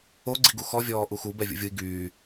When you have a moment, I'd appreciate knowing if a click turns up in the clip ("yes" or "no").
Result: yes